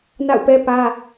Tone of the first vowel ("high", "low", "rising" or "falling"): falling